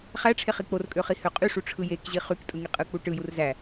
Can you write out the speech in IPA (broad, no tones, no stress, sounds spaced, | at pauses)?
χ æ ʈ͡ʂʰ e χ i k͡p o r kʼ ø χ i h ø qʼ y ʂ u ʈ͡ʂʰ ɯ j e k ʑ i χ y k tʼ ɯ ŋ i qʼ ɯ k͡p u ʈ ɯ j u r z æ